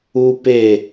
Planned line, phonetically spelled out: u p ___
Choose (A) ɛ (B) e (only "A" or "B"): B